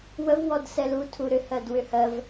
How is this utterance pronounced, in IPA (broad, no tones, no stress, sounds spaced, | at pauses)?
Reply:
w ə v w ɔ d s ɛ l u tʰ u ɾ ʏ h ɜ d w ʏ h ɜ v